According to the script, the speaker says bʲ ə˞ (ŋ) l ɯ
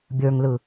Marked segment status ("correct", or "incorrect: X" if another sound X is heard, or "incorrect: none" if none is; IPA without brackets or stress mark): correct